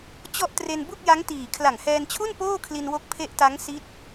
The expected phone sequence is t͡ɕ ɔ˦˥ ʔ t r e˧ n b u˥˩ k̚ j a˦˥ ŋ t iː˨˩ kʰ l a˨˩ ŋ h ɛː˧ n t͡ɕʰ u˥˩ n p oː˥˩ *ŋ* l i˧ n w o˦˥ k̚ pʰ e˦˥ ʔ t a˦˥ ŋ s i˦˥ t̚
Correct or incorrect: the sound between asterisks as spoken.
incorrect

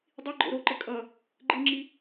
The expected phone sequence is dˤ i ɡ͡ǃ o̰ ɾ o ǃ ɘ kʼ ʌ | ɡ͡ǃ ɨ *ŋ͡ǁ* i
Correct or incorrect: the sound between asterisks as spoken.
correct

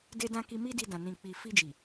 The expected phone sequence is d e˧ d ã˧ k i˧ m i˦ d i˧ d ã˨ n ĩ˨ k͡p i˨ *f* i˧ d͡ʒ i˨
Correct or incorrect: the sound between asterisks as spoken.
correct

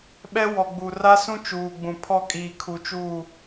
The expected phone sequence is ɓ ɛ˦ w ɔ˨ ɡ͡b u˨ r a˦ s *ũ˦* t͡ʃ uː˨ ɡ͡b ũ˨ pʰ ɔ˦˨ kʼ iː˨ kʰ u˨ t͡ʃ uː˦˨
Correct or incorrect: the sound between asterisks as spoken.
correct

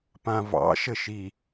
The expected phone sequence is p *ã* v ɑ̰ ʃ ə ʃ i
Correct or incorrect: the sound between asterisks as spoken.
correct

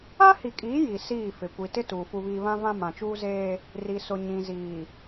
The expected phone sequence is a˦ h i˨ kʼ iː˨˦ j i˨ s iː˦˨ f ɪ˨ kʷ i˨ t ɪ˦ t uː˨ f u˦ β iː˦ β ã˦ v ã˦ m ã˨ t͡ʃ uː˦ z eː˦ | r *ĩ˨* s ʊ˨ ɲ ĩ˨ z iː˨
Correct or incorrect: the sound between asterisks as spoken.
incorrect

